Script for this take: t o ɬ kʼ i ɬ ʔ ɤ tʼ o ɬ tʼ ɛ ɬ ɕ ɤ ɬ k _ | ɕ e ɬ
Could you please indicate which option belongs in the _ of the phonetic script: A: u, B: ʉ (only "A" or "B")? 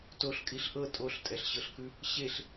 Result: B